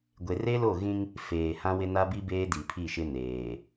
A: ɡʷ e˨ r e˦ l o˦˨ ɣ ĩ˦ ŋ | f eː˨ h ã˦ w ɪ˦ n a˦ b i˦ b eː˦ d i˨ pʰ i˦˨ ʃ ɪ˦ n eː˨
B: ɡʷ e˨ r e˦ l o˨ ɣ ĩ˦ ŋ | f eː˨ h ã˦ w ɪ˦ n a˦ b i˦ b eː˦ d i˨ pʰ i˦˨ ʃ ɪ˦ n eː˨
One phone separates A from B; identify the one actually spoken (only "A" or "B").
A